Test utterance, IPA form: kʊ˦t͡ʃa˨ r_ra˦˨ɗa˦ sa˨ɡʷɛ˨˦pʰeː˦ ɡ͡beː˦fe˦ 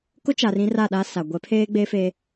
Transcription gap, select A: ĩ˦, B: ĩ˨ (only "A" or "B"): A